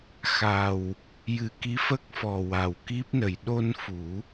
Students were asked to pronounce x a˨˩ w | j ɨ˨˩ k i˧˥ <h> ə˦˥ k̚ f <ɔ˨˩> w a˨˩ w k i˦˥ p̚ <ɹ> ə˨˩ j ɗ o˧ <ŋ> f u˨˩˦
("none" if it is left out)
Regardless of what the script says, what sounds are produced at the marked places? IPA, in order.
f, ɔ˨˩, n, n

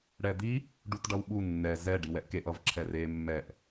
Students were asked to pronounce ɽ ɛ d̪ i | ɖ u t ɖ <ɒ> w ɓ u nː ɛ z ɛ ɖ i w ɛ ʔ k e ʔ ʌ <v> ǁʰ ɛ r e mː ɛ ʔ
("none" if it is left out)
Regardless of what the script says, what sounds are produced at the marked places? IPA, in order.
ʌ, v

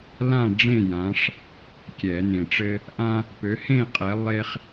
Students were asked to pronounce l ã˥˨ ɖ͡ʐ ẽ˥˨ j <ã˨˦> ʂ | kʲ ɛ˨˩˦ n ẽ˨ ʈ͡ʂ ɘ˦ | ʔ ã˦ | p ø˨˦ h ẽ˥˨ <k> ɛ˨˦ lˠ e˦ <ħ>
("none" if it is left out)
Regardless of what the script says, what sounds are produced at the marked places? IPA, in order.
ã˨˦, qʼ, χ

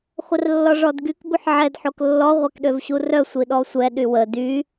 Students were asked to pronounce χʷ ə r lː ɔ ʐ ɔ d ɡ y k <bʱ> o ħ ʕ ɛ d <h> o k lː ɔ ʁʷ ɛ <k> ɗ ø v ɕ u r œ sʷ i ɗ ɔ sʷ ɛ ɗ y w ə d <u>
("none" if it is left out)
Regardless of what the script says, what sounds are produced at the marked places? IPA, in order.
b, ħ, k, y

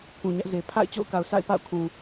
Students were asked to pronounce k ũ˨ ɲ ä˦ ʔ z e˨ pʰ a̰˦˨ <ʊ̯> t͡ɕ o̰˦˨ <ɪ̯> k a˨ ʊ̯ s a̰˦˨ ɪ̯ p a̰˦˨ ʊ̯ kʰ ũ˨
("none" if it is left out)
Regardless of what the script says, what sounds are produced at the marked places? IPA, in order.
ɪ̯, ʊ̯

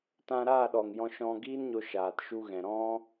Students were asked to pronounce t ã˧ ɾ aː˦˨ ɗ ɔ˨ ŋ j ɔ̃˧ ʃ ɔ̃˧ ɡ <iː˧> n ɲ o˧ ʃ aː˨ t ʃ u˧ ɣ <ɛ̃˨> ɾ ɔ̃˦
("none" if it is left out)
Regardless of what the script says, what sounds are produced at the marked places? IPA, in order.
iː˦, ɛ̃˨

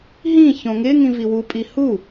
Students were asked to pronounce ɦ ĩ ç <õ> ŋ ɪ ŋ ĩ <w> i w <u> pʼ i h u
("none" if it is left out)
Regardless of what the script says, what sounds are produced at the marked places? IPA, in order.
õ, v, u

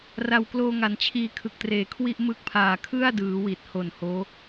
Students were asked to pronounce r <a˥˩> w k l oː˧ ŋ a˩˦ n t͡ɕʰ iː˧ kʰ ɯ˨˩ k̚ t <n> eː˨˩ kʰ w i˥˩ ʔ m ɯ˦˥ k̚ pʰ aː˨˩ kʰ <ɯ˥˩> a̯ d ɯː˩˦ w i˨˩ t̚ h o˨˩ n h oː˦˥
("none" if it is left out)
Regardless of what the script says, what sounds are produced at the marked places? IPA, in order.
a˨˩, r, ɯ˥˩

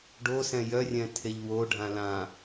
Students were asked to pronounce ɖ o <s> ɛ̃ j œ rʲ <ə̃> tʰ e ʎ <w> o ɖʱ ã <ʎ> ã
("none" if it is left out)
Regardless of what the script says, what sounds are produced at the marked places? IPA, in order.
s, ɛ̃, w, l

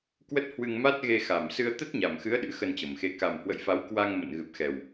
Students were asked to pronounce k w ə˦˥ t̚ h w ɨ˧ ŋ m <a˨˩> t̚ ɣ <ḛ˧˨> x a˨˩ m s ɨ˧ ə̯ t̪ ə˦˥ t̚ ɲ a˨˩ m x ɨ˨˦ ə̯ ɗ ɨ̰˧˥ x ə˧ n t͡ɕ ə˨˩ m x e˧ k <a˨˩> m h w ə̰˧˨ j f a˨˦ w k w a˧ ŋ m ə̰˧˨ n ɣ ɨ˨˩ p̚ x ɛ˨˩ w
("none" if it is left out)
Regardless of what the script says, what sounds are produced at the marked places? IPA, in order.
a˦˥, e˧, a˨˩

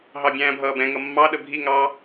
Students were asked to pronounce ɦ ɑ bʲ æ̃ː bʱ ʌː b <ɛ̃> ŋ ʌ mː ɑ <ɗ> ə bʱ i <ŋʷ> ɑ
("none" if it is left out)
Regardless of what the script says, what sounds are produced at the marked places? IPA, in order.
ɛ̃, ɗ, ŋ

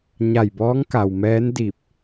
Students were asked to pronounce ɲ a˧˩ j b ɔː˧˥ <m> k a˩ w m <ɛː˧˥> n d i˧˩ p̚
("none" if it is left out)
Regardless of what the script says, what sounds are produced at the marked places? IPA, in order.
ŋ, ɛː˧˥

